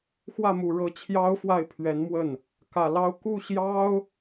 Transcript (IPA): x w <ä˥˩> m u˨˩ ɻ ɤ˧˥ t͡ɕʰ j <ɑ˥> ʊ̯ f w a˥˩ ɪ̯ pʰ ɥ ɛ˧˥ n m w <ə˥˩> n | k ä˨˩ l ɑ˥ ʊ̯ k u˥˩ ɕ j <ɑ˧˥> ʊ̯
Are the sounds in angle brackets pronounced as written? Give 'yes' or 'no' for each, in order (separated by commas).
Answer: yes, yes, yes, no